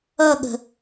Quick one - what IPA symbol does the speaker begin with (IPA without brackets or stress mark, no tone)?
ʌ